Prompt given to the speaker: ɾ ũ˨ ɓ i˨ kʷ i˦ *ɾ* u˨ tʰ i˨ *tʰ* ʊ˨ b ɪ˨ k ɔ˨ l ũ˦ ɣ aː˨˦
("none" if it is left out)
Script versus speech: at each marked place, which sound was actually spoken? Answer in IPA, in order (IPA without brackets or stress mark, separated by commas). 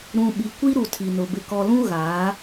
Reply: ɾ, n